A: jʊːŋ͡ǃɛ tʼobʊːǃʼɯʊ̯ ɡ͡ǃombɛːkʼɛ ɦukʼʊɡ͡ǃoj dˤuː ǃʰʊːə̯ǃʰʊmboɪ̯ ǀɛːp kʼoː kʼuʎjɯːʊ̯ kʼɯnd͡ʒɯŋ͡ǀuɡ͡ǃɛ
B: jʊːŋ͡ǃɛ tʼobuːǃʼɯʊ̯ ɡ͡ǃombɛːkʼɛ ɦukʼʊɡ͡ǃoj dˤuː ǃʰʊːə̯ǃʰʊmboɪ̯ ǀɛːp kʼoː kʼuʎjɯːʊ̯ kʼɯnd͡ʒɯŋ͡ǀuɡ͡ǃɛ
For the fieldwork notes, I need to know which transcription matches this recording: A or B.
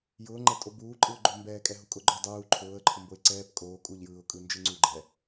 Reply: B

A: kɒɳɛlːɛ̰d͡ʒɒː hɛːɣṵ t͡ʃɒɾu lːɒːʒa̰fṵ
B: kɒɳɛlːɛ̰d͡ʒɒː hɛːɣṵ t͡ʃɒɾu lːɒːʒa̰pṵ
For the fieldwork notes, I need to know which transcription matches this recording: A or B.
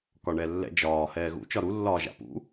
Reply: B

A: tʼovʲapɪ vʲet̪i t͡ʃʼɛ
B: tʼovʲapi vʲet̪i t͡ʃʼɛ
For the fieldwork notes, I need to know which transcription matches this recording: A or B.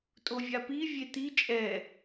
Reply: B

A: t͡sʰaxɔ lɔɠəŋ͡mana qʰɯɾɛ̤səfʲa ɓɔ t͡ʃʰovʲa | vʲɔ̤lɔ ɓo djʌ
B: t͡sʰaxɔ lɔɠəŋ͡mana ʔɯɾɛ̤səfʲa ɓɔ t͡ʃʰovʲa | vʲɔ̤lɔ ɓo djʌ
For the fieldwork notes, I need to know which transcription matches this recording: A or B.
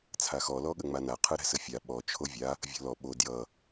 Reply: A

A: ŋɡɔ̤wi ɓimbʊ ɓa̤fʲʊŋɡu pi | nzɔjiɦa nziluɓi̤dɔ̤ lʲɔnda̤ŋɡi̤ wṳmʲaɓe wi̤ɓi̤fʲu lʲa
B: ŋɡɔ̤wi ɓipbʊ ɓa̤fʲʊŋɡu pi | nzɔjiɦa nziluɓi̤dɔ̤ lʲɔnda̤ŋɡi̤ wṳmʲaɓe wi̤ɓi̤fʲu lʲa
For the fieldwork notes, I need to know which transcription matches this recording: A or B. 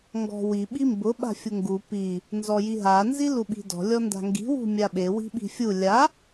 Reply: A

